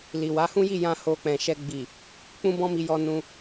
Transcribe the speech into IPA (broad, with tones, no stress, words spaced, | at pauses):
li˨wa˨˦hũ˦ji˦˨ jã˧ ho˧k͡pɛ̃˨ʃɛ˧ ɡ͡bi˨ | k͡pũ˦bɔ̃˦mi˧jɔ˧ nũ˧